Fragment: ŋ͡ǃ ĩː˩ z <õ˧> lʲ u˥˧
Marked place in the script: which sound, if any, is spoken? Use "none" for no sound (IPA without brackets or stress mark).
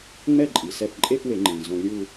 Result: õ˧